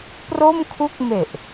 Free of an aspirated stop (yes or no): no